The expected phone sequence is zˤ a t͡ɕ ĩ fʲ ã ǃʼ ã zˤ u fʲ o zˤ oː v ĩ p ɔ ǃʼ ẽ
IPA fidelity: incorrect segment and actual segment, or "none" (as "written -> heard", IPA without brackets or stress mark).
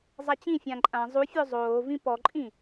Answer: ẽ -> ĩ